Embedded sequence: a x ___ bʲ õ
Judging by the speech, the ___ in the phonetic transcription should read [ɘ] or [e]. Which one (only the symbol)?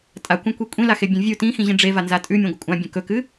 e